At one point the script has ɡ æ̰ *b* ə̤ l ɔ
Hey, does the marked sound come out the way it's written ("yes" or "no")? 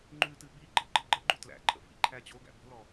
yes